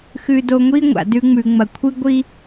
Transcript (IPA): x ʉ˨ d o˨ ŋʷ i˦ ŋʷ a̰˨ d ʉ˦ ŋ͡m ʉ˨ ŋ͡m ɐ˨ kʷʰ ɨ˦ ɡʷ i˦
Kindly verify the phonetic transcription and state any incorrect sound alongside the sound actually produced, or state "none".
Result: none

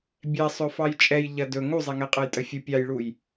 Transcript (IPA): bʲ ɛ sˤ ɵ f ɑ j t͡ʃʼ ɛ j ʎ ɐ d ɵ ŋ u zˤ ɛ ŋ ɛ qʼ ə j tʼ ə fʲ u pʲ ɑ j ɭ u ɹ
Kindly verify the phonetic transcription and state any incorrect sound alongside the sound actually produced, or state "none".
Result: ɹ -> j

